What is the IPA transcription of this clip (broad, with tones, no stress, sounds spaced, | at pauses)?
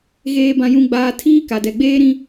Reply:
ɣ eː˨ b ã˨ j ũ˨ ɡ͡b aː˨ tʰ iː˦ k a˨ d ɛ˨ ɡ͡b eː˦ ɾ ĩ˦